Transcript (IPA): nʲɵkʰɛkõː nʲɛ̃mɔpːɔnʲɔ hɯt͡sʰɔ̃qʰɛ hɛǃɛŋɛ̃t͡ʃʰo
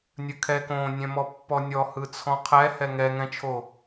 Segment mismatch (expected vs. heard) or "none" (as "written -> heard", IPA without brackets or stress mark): ǃ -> ŋ